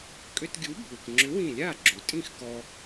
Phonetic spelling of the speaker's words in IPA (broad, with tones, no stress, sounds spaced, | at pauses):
kʼ ʏ˧ t ɡʲ u˨˥ bʱ u˩ k ŋ͡ǁ ʏ˨˥ w ĩ˧˩ lʲ a˥˩ ɡ͡ǁ u˩ tʼ ĩ˥˩ x k ɔ˧